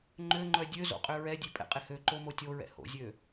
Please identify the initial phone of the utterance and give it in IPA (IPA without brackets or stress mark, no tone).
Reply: ŋ͡ǃ